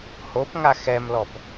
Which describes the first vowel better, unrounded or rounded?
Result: rounded